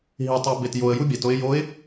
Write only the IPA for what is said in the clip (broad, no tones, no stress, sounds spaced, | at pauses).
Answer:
ɦ i tˤ e b e t j o ə̯ j u bʲ æ t o ɪ̯ j o ɪ̯